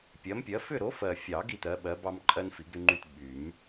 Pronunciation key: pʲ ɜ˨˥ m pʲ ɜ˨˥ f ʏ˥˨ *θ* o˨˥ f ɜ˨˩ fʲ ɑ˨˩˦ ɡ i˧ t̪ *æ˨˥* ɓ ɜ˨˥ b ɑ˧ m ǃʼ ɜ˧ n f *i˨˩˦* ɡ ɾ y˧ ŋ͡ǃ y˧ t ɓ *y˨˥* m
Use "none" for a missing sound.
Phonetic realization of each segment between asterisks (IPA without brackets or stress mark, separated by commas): ɾ, ɜ˨˥, i˨˩˦, y˨˩˦